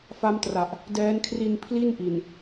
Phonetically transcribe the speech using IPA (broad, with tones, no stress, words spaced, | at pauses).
fa˦˥mtra˨˩ʔ | dɛː˦˥nkʰri˧n pʰli˥˩nʔi˨˩n